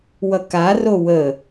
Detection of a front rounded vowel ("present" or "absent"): absent